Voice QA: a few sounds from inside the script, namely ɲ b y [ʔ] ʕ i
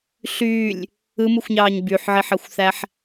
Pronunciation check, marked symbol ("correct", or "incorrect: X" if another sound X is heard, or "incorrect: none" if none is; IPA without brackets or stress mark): incorrect: ħ